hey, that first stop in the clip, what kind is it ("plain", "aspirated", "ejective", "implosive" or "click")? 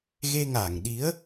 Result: implosive